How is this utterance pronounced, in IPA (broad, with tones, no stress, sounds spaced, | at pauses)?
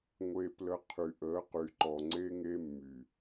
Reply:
ŋʷ e˧ p l ə˧ qʰ y˨ ʔ əː˨˦ q y˨ ǃ ɔ˨ ŋ͡ǀ e˦ ŋ e˦ mː y˨